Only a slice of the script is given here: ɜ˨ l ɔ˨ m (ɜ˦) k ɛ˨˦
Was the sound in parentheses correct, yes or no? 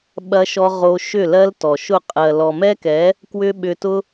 no